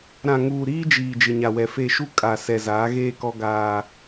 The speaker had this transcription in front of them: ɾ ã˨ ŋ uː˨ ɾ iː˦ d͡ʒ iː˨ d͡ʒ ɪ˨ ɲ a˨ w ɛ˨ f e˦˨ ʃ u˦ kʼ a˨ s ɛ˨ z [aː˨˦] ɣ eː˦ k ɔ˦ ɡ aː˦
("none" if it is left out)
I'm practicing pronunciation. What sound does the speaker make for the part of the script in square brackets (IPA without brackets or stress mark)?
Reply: aː˨˦